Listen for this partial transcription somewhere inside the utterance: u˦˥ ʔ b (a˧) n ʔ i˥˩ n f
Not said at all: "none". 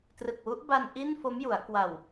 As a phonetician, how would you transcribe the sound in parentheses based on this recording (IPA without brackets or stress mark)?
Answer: a˧